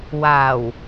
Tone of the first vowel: low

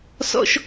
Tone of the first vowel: high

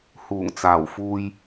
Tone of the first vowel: low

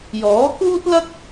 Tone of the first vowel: rising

